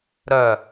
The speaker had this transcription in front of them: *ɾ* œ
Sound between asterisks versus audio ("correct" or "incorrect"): correct